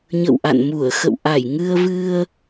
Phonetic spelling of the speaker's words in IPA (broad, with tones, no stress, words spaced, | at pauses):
ɲə̰˧˨wʔa̰˧˨nmu˧˩ə̯ xə̰˧˨wʔa˧˩jŋɨ˧ə̯vɨ˧ə̯